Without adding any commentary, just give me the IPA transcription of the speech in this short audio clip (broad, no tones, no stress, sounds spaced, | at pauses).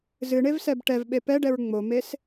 z ɨ ɳ e v s ɛ b ʈ ɛ v ɓ e p ɛ ɖ ɛ ɹ ŋ͡m o m e s